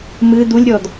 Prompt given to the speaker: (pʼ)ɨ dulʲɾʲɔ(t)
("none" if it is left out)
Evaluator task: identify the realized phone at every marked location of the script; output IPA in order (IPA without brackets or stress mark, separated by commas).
m, d